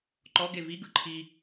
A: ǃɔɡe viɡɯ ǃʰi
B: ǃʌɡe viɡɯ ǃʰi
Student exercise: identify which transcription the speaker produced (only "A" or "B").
A